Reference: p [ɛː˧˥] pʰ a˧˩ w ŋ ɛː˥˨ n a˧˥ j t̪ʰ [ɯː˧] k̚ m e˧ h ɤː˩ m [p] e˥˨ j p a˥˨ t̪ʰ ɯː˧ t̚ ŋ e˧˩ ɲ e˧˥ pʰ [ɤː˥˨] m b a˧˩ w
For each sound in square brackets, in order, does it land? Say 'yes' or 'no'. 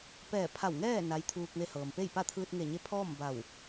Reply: no, no, yes, no

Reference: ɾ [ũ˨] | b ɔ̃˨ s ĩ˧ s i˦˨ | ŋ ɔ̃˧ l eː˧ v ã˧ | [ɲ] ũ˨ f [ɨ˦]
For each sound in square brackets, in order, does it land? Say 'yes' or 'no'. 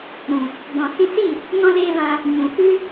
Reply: yes, yes, yes

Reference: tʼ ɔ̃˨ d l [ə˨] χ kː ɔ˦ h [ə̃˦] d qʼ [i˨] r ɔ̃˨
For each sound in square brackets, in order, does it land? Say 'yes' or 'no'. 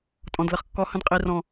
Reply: yes, yes, yes

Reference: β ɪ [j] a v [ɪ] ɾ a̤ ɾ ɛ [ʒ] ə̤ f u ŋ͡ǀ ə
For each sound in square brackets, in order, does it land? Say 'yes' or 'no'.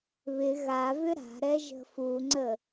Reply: no, no, yes

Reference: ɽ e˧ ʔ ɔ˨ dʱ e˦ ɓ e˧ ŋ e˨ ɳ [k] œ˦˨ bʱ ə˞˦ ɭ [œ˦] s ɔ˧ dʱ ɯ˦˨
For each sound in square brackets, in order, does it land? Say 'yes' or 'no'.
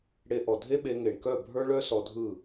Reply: yes, yes

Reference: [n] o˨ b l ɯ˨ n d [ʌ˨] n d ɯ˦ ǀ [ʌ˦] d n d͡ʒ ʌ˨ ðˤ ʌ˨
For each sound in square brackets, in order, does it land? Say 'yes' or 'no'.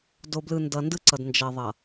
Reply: no, yes, no

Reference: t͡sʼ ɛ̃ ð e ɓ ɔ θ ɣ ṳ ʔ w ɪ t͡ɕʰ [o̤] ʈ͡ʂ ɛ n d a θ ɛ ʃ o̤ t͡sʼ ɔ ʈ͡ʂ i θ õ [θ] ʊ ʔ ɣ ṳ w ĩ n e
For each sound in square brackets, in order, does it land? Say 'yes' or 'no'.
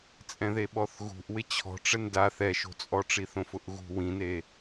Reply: no, no

